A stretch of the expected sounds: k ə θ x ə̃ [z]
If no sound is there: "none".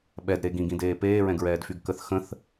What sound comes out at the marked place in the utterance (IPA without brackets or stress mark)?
θ